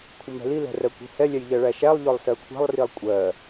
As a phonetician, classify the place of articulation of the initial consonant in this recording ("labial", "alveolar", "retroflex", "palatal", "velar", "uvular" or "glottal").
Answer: velar